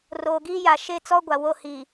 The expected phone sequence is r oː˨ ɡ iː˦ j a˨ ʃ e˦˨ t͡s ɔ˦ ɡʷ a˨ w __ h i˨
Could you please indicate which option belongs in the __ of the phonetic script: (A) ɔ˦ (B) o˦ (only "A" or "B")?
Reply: B